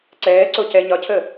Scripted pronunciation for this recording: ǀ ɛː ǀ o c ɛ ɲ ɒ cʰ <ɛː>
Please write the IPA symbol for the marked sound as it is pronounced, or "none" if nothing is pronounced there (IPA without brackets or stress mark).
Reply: əː